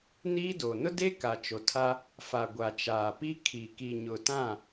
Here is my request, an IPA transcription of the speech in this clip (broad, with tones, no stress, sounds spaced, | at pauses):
n iː˦ d oː˨ n ʊ˦ d e˦ k a˨ t͡ʃ o˨ tʰ a˦ | f a˨ ɡʷ a˨ t͡ʃ aː˨ p i˦ kʰ i˨ k i˨ ɲ ʊ˨ t ã˦˨